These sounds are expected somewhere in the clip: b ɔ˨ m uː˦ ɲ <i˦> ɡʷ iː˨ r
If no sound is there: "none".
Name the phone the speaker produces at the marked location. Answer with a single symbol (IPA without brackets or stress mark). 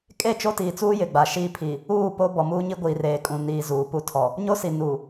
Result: i˦